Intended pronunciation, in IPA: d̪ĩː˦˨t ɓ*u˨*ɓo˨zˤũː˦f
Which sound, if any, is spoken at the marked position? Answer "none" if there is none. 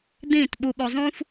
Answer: u˨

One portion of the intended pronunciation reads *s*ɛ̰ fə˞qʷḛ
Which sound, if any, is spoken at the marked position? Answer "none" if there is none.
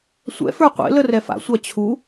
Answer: sʷ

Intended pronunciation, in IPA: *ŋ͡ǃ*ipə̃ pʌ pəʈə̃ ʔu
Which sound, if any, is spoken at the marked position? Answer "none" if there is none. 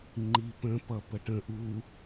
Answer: ŋ͡ǃ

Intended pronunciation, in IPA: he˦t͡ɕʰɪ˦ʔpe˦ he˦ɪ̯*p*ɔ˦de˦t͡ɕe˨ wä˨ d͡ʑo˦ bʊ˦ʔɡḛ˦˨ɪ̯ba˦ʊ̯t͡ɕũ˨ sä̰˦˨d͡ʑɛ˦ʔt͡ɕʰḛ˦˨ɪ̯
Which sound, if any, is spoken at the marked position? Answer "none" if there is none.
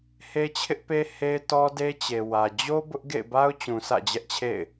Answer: t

